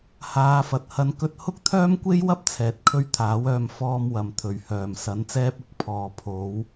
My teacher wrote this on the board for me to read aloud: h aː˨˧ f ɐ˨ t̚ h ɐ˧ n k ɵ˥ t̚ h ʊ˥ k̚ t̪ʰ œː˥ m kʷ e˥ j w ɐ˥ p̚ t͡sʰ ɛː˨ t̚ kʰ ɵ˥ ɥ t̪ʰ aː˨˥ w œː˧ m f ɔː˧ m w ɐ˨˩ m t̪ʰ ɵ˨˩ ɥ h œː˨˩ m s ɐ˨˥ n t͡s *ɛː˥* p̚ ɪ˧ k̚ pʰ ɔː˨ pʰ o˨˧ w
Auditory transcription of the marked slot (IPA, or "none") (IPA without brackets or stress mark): ɛː˥